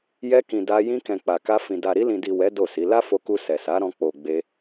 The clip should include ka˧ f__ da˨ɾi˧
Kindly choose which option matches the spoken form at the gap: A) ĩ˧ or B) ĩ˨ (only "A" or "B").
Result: B